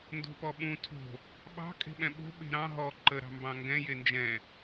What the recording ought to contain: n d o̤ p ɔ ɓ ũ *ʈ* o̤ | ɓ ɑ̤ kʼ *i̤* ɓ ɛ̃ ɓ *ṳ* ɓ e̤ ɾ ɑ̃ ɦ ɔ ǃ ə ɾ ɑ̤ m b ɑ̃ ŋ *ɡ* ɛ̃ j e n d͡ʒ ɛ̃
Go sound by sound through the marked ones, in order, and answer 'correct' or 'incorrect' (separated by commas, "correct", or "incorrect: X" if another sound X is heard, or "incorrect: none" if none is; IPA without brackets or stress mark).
incorrect: tʰ, incorrect: e̤, incorrect: o̤, correct